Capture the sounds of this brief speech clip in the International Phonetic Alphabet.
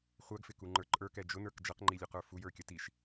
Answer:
χʷ æ ɡ f ɪ k u ŋ͡ǃ ə˞ ǃʼ ə˞ k ɛ d͡ʒ ʊ n ə˞ k d͡ʒ ʌ q ŋ͡ǃ i lʲ u q ə˞ f u j ə˞ kʲ ʌ t i ʃ

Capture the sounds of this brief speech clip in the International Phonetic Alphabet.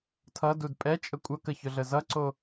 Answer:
tʰ ʌ d u d pʼ ɛ t͡ʃʼ ə kʷʼ ʌ k ə ç ɵ ɮ ə z ʌ ǀ o

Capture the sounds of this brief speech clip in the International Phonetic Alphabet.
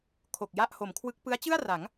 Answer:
kʰ o˨˩ k̚ j a˥˩ ʔ h o˩˦ m kʰ w ɯ˦˥ k̚ p ɯ˦˥ a̯ t͡ɕ ɯ˥˩ a̯ r a˩˦ ŋ

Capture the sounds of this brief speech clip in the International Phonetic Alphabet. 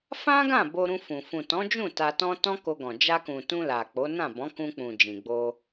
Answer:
f ã˦ ɡ ã˦˨ b o˧ ɾ ũ˧ f ũ˨ f ũ˨ t ɔ̃˨˦ d͡ʒ ũ˦˨ t a˧ t ɔ̃˦ t ɔ̃˦ k o˧ ɡ ɔ̃˨ d͡ʒ a˧ k ũ˨ t ũ˧ l a˨ k͡p o˨˦ n ã˦˨ b ɔ̃˨˦ k ũ˧ k͡p ũ˨ d͡ʒ ĩ˨ ɡ͡b o˧

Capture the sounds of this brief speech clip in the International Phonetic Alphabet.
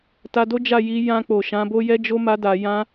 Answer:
t a˧ d o˦ d͡ʒ a˦˨ j i˨˦ j ã˧ k͡p o˨ ʃ ã˨˦ b o˦ j ɛ˦ d͡ʒ o˦ m a˦ d a˧ j ã˦

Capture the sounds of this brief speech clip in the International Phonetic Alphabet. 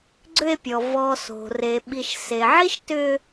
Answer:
ɡ͡ǀ ʏ˦ e̯ pʲ ɔ˩ v ɔ˨ s o̤˩ r e˩ ɓ i˨ ʃ s e˩ ʕ i˥ ʃ t ʏ˦

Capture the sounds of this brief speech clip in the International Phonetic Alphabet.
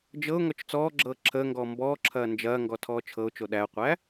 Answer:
d͡ʒ ɤ ʊ̯ ŋ ɔ t͡ʃ t͡s ɔː ɡ͡ǁ ɤː ǁʰ əː ŋ ɡ ɔː m b ɔː ǁʰ ɐː n d͡ʒ ɐː ŋ ɡ ɔ tʰ ɔː t͡ʃʰ ɤ ʊ̯ t͡ʃ o ɗ æ ʊ̯ qʷ æ

